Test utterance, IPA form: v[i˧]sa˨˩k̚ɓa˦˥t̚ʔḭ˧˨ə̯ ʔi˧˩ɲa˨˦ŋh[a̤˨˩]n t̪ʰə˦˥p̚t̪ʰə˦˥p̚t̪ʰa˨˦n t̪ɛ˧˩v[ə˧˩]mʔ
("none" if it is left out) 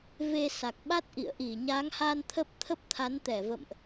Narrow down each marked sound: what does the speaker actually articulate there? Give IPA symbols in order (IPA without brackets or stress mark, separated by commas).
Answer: e˧, a˧, ə̰˧˨